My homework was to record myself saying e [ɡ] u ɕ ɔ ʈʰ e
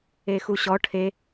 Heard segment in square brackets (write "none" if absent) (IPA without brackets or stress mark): x